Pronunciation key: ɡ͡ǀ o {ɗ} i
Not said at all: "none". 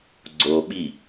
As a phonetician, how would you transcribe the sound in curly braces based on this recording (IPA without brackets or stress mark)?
ɓ